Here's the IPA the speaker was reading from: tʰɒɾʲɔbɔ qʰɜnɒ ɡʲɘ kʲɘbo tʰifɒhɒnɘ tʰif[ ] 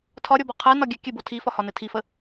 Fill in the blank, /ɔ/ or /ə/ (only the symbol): ə